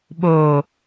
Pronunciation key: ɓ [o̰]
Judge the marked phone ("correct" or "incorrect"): incorrect